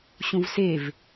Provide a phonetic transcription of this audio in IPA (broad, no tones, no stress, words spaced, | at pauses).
ɕũvsev